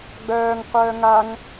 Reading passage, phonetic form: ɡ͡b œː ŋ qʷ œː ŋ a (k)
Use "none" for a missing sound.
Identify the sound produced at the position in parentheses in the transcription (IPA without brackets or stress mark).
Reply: ŋ